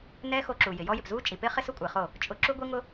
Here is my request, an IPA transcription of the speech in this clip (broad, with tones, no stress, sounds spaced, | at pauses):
n ɛː˦ x o˧ ǁ u˨ j ɪ˨ j ɔ˦ j ɪ˨ p z uː˦ t͡ʃʼ i˨ p ɪː˦ χ ɪ˦ s ʊ˦ kʷʼ ɪː˨ χ o˦˨ | t͡ʃʼ ʊ˧ ǁ u˦ ɡʷ i˦ ŋ ʊ˦